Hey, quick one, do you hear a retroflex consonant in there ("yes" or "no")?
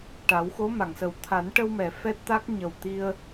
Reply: yes